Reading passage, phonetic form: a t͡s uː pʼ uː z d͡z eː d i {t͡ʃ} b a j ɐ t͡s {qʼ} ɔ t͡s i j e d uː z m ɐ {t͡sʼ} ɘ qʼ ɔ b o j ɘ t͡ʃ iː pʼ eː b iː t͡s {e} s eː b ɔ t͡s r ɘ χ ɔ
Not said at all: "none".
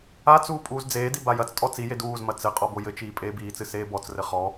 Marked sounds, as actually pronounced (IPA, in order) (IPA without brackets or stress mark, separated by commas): none, tʼ, t͡s, ɨ